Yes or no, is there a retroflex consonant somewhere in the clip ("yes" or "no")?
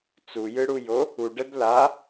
yes